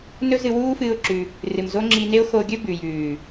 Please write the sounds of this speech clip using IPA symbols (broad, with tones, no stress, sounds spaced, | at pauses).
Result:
n ɵ˦ z ɨ˧ w uː˦ f ɨː˦ ʊ̯ ǁ ʉ˧ | r ɨ˨ m z o˦ ŋ͡ǁ i˧ n e˦ ʊ̯ x o˧ ɡʲ ɵ˦ b ʉ˨ j ʉː˨